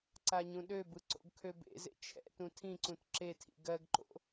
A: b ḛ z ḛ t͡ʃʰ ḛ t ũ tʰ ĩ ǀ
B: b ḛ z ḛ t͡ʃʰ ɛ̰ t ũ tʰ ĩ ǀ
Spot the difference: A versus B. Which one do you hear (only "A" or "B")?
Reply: B